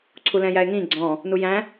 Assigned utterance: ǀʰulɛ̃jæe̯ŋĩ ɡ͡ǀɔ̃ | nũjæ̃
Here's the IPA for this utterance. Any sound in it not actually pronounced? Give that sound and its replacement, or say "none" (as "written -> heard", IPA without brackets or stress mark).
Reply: ũ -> u